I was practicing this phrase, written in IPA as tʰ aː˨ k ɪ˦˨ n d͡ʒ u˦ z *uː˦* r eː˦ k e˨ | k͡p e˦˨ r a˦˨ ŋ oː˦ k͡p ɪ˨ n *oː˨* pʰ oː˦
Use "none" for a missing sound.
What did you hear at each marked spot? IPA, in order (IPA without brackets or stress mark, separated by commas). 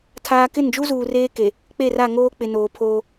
uː˨, oː˨